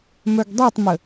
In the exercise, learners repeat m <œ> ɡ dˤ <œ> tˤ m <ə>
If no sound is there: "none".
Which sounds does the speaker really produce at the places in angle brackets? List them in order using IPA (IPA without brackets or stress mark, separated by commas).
œ, ɛ, ə